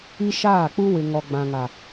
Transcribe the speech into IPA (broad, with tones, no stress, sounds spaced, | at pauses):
i˦ ʃ aː˦˨ k͡p u˦ w ɪ˨ ŋ ɔ˨ ɡ͡b ã˨ ŋ a˨